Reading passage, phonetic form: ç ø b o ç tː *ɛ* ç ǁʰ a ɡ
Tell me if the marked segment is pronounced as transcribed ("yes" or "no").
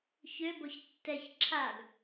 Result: yes